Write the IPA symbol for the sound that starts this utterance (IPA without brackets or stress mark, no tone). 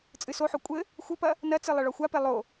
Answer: t͡sʼ